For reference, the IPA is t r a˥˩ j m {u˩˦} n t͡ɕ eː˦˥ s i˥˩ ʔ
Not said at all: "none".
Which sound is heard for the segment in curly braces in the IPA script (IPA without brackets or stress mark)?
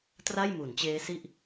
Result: u˩˦